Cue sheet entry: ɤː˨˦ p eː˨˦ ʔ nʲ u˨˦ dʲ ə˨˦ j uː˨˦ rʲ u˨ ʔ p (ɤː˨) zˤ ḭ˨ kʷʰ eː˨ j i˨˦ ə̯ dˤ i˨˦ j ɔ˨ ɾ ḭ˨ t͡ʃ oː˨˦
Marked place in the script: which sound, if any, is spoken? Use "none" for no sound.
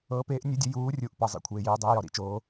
ɤ˨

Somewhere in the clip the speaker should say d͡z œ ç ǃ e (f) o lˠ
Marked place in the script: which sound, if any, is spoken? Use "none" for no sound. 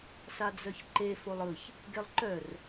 f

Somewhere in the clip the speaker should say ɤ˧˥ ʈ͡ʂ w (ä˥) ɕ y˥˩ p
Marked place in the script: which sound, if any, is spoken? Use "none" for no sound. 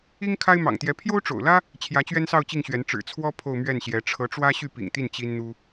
ä˥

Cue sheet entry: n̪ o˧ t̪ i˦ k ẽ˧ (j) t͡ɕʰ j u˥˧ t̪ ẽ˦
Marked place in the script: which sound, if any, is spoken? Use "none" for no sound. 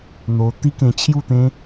none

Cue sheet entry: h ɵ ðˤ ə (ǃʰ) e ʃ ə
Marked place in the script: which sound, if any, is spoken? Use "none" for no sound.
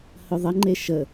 ŋ͡ǃ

